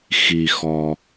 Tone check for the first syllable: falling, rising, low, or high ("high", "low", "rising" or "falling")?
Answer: low